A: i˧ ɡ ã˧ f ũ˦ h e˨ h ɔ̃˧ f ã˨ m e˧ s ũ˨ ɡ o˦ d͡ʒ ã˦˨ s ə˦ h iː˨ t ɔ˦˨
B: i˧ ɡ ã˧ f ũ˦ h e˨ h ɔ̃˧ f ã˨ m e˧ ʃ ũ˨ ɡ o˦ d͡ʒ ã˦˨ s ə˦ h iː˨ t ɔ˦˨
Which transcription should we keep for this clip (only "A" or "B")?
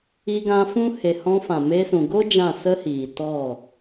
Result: A